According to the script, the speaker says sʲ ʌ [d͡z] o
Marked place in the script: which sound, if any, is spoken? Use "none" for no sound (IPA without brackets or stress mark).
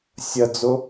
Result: d͡z